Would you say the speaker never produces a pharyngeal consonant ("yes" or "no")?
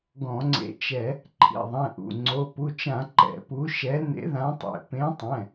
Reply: yes